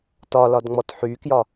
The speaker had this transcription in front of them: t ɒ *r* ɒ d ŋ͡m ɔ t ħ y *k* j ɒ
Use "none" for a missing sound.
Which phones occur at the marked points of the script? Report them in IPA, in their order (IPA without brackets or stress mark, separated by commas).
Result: l, k